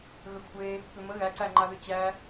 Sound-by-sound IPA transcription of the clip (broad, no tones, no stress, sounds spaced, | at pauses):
ɣ ə kʷʰ e | p ʏ m ə ɣ æ ǀ æ ŋ͡ǃ a ð ʏ t͡ɕ æ